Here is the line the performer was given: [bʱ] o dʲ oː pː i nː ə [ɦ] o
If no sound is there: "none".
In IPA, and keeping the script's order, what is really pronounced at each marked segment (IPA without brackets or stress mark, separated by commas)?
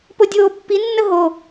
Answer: p, ɦ